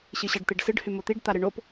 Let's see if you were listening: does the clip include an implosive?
no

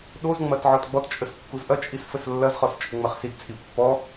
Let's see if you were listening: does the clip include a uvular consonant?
yes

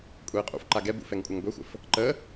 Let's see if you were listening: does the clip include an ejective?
yes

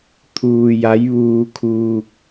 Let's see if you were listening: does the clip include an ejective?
no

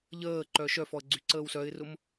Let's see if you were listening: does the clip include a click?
yes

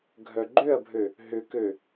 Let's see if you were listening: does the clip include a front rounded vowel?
yes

